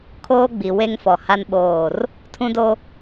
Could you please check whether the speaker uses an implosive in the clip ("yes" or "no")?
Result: yes